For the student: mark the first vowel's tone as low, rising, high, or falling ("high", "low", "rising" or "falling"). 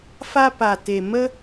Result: high